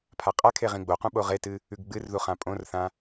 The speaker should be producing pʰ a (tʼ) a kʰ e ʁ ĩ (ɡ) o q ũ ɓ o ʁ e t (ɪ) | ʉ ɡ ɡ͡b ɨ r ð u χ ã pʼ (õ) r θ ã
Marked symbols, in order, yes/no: no, no, no, yes

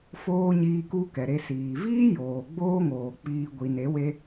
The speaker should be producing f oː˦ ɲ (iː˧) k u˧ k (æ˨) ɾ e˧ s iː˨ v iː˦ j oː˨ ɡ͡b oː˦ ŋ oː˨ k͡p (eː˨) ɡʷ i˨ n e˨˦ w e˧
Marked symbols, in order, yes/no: yes, no, no

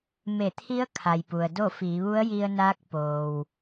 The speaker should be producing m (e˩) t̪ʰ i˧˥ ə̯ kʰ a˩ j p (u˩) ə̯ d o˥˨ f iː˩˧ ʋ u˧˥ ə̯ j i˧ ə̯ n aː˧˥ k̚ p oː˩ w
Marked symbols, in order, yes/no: no, yes

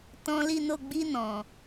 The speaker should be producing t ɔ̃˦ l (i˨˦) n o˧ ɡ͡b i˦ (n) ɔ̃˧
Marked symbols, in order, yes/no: no, yes

